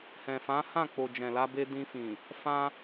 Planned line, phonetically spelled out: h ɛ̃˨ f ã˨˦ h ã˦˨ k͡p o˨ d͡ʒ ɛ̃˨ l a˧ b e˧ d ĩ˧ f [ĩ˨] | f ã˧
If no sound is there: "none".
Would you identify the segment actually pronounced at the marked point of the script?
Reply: ĩ˨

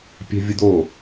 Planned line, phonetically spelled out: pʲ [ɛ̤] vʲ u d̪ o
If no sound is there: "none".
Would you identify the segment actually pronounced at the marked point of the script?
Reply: ɛ̤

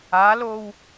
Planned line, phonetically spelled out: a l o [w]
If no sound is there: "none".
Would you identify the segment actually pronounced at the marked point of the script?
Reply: w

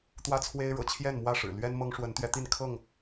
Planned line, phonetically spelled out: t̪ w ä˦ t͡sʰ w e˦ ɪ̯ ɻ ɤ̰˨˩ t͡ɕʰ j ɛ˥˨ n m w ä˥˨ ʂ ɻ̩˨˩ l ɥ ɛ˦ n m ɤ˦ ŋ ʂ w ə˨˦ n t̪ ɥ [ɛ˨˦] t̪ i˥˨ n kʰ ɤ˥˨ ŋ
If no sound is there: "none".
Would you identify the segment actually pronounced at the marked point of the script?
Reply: ɛ˨˦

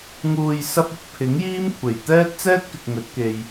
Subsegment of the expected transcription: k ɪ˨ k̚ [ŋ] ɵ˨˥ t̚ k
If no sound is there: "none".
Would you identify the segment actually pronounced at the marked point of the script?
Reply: ŋ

